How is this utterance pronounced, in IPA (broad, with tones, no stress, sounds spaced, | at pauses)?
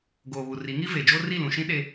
ɡ oː˨ β u˨ r i˨˦ ŋ i˦ v e˨ d͡ʒ o˦ r i˦˨ l ũ˨ ʃ ĩ˦ ɗ e˦